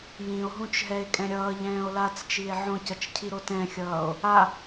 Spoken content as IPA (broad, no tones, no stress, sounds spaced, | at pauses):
j ĩ o̯ ɦ ũ t͡ʃ ɦ ɛ e̯ kʼ ɛ̃ ɾʲ ʌː ʎ ɛ̃ː o̯ l a t͡s t͡ʃ i e̯ ʕ õ c ʌ t͡ʃ cʰ i ɾ o t ɛ̃ xʲ ʌː o̯ | a